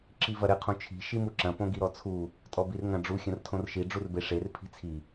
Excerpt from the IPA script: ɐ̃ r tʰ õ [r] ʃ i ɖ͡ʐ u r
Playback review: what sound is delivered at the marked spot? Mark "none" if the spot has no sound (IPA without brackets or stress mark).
r